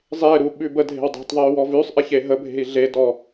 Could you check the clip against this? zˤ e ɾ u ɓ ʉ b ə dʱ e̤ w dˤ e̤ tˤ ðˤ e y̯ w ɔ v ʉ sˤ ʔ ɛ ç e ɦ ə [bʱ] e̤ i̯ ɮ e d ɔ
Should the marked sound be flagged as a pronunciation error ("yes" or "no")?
no